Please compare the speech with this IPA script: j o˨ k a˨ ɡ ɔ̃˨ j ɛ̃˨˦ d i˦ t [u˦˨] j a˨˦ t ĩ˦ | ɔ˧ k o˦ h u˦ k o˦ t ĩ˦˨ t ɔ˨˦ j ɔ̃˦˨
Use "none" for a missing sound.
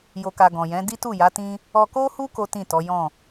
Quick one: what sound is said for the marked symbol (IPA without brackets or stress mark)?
u˦˨